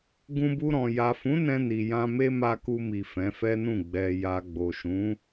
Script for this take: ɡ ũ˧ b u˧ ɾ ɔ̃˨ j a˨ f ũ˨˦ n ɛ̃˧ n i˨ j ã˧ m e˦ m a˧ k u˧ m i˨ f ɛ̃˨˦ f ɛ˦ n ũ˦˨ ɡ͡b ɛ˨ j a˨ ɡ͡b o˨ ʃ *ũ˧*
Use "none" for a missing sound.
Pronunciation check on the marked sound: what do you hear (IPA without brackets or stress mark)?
ũ˨˦